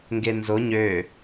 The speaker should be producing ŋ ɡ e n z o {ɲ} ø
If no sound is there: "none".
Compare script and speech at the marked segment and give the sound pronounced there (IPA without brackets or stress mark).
ɲ